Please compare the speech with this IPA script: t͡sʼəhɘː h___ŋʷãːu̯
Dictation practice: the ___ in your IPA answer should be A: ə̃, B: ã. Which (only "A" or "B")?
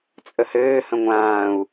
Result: A